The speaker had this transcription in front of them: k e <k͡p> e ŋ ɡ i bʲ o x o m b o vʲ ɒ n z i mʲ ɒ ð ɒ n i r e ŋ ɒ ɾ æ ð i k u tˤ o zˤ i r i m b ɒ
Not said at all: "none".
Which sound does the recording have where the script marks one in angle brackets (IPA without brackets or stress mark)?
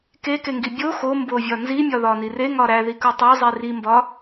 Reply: k